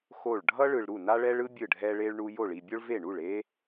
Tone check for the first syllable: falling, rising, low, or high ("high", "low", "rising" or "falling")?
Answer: falling